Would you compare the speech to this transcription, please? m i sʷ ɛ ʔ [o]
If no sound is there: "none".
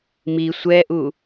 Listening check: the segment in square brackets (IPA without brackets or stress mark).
u